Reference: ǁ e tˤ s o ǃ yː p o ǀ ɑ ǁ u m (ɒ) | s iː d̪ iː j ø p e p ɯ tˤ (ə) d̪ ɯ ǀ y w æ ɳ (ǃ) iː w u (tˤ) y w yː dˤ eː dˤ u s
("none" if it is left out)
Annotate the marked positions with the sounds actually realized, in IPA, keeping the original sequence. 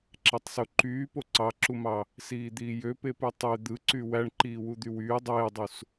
ɑ, ø, ǃ, d̪

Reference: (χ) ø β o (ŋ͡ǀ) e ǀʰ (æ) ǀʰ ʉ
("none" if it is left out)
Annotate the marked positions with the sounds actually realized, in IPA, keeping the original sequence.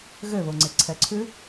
ɣ, ŋ͡ǀ, ɛ

